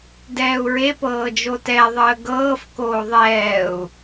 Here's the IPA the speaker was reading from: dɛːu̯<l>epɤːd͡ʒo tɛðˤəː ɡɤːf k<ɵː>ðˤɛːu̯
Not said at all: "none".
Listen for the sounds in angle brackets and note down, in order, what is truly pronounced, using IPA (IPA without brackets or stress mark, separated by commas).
ɹ, oː